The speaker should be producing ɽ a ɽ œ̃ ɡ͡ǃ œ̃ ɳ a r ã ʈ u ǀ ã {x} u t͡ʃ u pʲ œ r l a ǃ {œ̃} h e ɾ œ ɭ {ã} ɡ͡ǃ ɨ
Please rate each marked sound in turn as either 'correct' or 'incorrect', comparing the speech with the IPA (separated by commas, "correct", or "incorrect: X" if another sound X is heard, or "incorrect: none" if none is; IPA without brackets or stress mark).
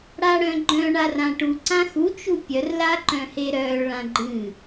correct, correct, correct